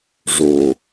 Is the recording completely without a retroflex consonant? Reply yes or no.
no